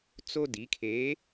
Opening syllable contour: high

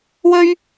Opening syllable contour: high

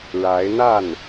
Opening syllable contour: rising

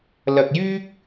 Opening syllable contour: low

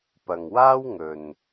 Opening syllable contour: low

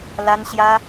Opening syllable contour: high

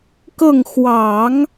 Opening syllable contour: falling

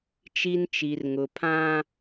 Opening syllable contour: high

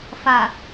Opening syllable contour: low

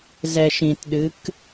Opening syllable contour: low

